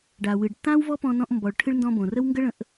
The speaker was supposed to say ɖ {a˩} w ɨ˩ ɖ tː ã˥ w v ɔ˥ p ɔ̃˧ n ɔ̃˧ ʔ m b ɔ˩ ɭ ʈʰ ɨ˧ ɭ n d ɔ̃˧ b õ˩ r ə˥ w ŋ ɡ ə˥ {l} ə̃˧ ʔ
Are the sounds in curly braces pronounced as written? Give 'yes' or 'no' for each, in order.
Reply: yes, no

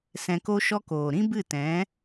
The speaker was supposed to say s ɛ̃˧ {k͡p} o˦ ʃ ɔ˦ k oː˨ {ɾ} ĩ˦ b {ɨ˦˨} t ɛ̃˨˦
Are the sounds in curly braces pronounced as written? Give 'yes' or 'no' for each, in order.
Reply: no, yes, yes

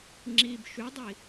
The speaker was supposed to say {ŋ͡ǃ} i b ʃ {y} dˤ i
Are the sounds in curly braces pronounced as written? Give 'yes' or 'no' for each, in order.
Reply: no, yes

